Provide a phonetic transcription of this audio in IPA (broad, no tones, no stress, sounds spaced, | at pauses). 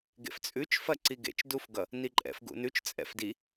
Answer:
ɡ ḛ f t͡sʼ ʉ t͡ʃ f ɐ ǀ i ɡ ḛ t͡ʃ d u f ɡ ʌ | n i ǃʼ ɛ̰ f ɡ ṵ n ʉ t͡ʃ t͡sʼ ɛ̰ f d i